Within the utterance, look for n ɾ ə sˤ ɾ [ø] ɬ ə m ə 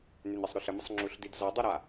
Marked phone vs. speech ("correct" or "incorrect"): correct